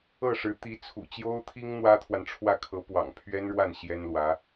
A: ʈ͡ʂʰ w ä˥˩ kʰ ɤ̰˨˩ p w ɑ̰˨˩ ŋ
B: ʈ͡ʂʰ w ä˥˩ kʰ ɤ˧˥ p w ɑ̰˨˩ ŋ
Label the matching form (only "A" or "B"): B